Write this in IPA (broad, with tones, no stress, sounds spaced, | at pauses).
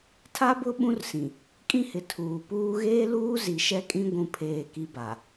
tʰ a˦ b ʊ˦ ɓ ũ˦ r s ĩ˨ | kʼ ĩ˦ h ɪ˨ tʰ uː˨ p uː˦ ɣ eː˦ l uː˦ z i˨ ʃ ɛ˦ kʼ ĩ˦ ɡʷ ũ˦ pʰ eː˦˨ k i˦ b a˨